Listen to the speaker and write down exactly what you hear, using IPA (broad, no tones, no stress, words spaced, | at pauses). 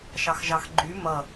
ʃɑxʒɑxɡ͡ǃy mʌ